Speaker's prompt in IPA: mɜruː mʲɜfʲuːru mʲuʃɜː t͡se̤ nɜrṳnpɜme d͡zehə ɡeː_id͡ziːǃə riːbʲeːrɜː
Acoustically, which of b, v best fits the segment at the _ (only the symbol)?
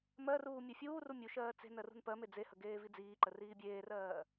v